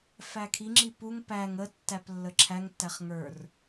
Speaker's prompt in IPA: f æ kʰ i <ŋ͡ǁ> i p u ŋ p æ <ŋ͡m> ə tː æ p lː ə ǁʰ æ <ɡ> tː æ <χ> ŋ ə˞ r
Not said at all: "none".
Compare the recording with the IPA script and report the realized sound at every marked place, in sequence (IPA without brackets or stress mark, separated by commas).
ŋ͡ǁ, ŋ, ŋ, χ